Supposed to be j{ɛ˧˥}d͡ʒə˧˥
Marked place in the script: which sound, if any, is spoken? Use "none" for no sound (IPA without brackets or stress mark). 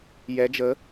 ɛ˧˥